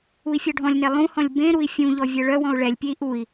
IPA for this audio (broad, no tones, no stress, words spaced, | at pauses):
ui̯fʲɔɖʱɔ̃lʲnɛ lˠũhɔ̃lʲ bẽ ɾui̯fʲũʎɔ vʲœɭœwɔ̃u̯ ɭɛlʲpʲei̯ ʔui̯